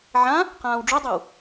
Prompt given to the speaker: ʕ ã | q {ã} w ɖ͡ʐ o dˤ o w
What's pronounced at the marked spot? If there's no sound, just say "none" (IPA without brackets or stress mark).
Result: ãː